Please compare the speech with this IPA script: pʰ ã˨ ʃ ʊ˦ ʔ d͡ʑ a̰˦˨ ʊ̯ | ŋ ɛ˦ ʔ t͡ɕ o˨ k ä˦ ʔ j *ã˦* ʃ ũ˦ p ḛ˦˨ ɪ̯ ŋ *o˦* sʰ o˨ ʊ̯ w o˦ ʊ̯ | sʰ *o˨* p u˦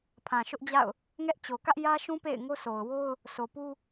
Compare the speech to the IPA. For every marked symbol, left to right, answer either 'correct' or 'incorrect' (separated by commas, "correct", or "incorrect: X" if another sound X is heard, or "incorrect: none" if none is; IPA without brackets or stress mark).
incorrect: ä˦, correct, correct